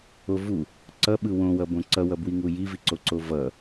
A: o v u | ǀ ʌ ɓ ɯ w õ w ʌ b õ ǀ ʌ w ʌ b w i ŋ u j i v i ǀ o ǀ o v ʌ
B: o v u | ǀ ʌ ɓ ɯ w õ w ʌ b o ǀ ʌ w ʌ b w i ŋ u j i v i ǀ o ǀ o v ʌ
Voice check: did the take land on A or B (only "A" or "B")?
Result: A